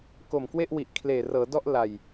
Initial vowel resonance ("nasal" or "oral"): oral